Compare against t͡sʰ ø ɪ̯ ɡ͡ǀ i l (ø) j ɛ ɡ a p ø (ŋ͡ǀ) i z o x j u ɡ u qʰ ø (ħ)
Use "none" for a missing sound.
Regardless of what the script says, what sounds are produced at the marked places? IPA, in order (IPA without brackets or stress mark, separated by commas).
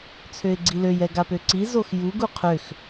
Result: ø, ǀ, x